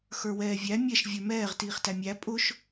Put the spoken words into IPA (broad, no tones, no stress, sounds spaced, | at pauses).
x ə˞ w ɛː vʲ æ mʲ ɛ ʃ vʲ ə˞ m ɛː ʁ t iː χ t æ mʲ æ pʼ ʊ ʃ